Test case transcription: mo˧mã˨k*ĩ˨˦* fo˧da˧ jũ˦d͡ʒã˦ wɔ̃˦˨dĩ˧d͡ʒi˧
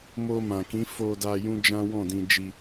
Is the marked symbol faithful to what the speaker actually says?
yes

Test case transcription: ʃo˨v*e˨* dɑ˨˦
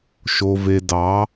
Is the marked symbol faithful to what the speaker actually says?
yes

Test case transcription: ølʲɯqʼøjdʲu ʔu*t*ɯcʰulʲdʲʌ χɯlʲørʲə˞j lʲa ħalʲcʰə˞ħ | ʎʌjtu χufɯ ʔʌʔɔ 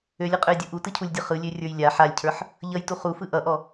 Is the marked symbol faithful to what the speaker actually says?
yes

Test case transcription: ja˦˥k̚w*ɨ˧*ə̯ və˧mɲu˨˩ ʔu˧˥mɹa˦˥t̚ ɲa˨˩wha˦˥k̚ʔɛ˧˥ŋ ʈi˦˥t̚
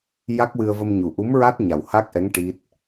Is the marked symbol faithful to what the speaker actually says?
yes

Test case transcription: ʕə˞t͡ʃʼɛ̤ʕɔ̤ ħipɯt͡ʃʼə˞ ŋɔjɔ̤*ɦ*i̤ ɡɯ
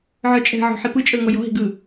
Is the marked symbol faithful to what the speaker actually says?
yes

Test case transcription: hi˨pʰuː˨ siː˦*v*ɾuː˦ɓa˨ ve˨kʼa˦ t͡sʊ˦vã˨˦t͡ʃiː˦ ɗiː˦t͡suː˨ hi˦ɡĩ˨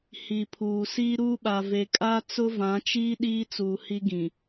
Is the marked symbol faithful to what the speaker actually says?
no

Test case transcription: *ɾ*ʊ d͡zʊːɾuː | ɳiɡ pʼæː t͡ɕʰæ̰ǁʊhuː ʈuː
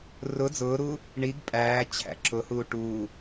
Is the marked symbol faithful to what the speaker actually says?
no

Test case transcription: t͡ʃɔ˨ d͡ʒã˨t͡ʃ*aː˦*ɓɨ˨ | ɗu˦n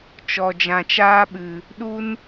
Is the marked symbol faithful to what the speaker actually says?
yes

